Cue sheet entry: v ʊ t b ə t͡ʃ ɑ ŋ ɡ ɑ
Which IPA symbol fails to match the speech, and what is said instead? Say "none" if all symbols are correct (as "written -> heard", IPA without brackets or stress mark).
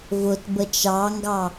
none